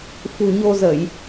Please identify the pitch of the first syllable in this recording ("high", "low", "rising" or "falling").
low